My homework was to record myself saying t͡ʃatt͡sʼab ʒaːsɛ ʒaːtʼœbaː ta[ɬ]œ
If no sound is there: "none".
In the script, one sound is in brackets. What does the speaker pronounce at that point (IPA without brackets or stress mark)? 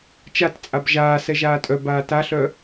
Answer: ɬ